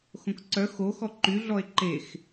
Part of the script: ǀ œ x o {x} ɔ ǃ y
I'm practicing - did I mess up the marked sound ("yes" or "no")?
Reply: no